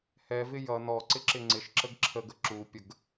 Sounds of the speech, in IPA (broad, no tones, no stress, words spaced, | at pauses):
hɛvɪ jʌ nɔǀɪǁɪ ŋ͡ǀɪʃǁəɡ ǁʰəɡə ǁupʲəɡ